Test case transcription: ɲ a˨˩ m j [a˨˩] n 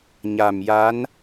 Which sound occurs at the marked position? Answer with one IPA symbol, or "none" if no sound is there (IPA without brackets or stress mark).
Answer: a˧˥